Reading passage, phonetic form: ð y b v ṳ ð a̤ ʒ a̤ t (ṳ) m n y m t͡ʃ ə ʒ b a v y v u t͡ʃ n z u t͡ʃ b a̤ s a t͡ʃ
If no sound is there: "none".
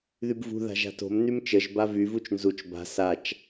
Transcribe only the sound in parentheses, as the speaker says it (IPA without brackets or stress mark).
o̤